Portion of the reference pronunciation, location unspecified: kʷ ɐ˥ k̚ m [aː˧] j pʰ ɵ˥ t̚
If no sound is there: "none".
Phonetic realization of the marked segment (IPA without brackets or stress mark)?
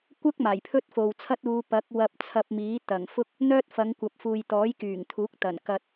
aː˨˩